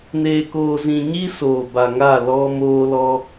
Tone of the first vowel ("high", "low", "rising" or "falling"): low